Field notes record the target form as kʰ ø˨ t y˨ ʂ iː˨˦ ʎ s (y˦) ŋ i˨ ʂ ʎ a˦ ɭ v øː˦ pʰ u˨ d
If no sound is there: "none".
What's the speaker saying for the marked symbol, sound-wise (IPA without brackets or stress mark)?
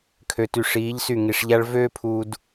y˦˨